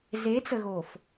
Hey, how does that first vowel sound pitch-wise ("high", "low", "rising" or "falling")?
rising